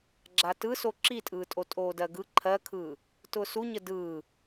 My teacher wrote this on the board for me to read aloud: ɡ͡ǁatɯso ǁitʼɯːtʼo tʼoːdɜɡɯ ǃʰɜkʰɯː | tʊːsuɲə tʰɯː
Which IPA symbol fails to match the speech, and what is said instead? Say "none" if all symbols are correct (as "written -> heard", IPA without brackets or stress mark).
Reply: tʰ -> d